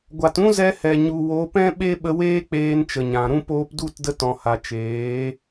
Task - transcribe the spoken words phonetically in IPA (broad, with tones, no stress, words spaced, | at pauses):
ɡʷa˨t ũ˦zɛ˧hɛ˨ ɲu˨wo˨˦pɛ̃˦ ɓe˦ɓə˧weː˦k͡peː˧n t͡ʃə˨ɲã˨ɾũ˦ poː˧pdu˦˨tdə˧ tɔ̃˨ha˨ t͡ʃeː˨˦